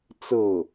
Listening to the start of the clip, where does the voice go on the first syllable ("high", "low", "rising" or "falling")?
falling